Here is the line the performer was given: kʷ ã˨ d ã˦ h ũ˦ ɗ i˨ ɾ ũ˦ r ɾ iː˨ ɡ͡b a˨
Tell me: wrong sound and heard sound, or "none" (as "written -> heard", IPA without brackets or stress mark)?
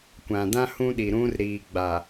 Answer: none